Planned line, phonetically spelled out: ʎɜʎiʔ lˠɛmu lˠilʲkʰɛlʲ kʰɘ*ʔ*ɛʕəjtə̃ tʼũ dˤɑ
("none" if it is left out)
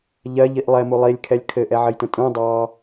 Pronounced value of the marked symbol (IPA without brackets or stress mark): ʔ